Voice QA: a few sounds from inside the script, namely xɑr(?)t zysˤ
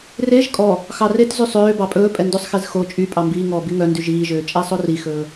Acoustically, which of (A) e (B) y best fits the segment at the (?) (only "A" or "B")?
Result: A